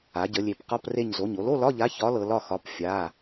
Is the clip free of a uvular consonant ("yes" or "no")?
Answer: no